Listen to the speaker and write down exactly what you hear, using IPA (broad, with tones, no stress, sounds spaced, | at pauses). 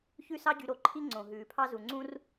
ç ʉ˥ s ɑ˥ ɟ y˧ ɾ o˩ ǃʰ i˥ ŋ͡ǀ õ˩ ɦ ʉː˩ pʰ ɑ˥ z u˩ ŋ͡ǀ ũ˥ r